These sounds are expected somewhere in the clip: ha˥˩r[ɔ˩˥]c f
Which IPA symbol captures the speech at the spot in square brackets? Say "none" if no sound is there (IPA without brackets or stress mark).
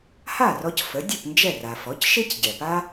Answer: ɔ˧